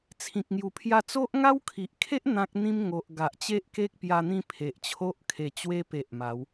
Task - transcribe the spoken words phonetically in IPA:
t͡sʰ ĩ˨ k̚ ŋ j u˨˩ pʰ j a˧ t͡s o˦ ʔ ŋ a˦ w kʰ i˨ ʔ kʰ e˦ ʔ n̪ ã˦ k̚ n̪ ĩ˦ m ŋ o˨ ʔ ɡ a˨ ʔ t͡ɕ e˦ ʔ k e˦ k̚ p j a˧ n̪ ĩ˥˧ pʰ e˨ ʔ t͡ɕʰ o˦ ʔ kʰ e˨˩ t͡ɕ w e˧ p e˨ ʔ m a˨˦ w

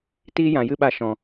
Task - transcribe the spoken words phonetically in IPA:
t iː˦ j ã˨ j ɨ˦ ɓ a˧ ʃ ɔ̃˨

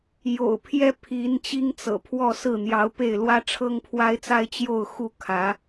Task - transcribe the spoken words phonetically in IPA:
j o̰˨˩ ʊ̯ pʰ j ɛ˥ pʰ i˧˥ n t͡ɕ i˥ ŋ t͡s ɤ̰˨˩ pʰ w ɔ˥˧ s ɹ̩˥˩ n̪ j ɑ˧˥ ʊ̯ p e˥˩ ɪ̯ l w ä˥ ʈ͡ʂʰ ɤ˥ ŋ pʰ w a˥ ɪ̯ t͡s a˥ ɪ̯ t͡ɕ j o˥˧ ʊ̯ x u˥˩ kʰ ä˧˥

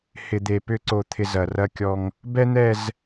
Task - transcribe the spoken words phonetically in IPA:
h ɪ˨ d̪ e˨ p ʏ˦ ǀ o˨ t̪ʰ ɪ˨ z ɐ˨ r ɐ˦ kʲ ɔ˦ ŋ | b ɛ˦ n̪ ɛ˦˨ z

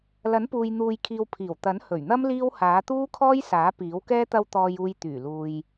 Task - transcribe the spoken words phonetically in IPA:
l ɐ˨˥ n p uː˨ j n̪ uː˨ j kʰ iː˨ w pʰ iː˨˩ w t̪ ɐ˨˥ n h ɵ˨˩ ɥ n̪ ɐ˥ m l iː˥ w h aː˨˥ t̪ uː˥ kʰ ɔː˥ j s aː˨˥ p iː˨˥ w k ɛː˥ t̪ ɐ˧ w t̪ ɔː˧ j uː˧ j t̪ yː˨˩ l uː˨ j

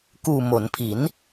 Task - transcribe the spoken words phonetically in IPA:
k uː˨˩ m o˩˦ n pʰ i˩˦ n

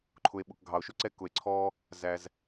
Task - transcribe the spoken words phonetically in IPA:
ǃʰ ʊ˨ e̯ ɓ ʊ˨ k ɡʱ ɑ˨ o̯ ʃ ʊ˦ ǀ ɛ˧ k ʊ˨ e̯ ǀʰ ɔ˧ | z æ˧ z

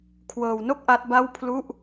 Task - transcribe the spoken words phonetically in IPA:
kʰ w ɤː˧ w n o˥˩ k̚ ʔ a˦˥ t̚ b a˥˩ w pʰ l u˥˩ ʔ

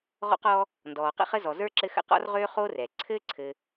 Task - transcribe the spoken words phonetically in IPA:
ʁ ɔ̰˥ q ɔ˦ | n d ɔː˨ q ə̰˥ χ ə˥ z ɔ˨ z ə˞˥ ǁ ɘ˦ x ə̰˦ q ɔ̰˥ r ʁ øː˥ χ oː˥ r ɛ˩ ǀʰ ɘː˥ ǀʰ ɘ˨

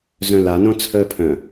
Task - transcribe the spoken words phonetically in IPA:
z œ̃ l a n õ t͡sʰ əː pʰ œ̃

